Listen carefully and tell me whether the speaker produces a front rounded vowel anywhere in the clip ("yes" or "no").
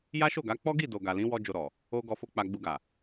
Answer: no